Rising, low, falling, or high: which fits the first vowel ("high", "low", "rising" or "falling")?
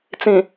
low